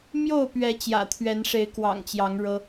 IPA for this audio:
m j o˥˨ ʊ̯ p ɥ ɛ˨˦ t͡ɕ j ä̰˨˩ t̪ʰ ɥ ɛ˨˦ n ʂ e˨˦ ɪ̯ k w ɑ̰˨˩ ŋ t͡ɕ j ɑ˨˦ ŋ ɻ ɤ˦

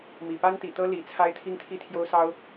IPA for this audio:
m i˨˩ p a˥ n t̪ i˨˩ t̪ ɤ˥ l i˨˩ t͡sʰ a˥ ɪ̯ t̪ʰ i˥ ŋ t̪ʰ i˥˩ t̪ʰ j o˥ ʊ̯ s ɑ˥ ʊ̯

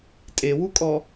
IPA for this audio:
tʼ e w u kʼ ɔ

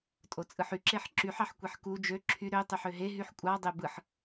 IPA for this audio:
tʼ o t͡sʼ ɯ ħ y ǁ e ħ ǁ y ħ ɑ ħ kʷ e ħ k u d͡ʒ ø ǁʰ y ɾ ø tˤ y ħ ø ɦ e ɦ y ħ kʷʼ ɑ dˤ e b ɯ ħ

